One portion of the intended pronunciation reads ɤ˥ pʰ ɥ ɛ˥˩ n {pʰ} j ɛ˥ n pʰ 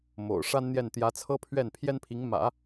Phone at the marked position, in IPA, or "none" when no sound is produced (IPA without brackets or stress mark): pʰ